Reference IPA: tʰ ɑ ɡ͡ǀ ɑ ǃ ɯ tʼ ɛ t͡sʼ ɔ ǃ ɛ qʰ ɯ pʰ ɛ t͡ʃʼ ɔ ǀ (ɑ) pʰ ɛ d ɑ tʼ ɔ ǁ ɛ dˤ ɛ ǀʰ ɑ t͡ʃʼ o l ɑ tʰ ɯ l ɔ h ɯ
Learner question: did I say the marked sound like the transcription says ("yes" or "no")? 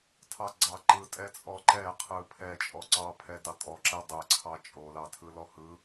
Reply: yes